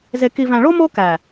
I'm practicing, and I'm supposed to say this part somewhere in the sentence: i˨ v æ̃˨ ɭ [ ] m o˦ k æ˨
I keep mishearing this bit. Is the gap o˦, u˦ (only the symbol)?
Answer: o˦